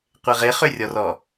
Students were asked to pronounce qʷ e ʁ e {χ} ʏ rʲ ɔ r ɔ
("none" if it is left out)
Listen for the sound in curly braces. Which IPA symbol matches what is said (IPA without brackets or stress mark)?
χ